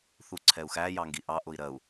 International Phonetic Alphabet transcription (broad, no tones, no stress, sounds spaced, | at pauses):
θ u ǀʰ ɛ u̯ x æ j ɑ ŋ ɡ i ʔ ɑ ʔ ʊ i̯ ɾ ɜ u̯